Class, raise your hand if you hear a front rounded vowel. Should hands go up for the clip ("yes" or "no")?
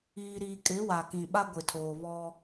no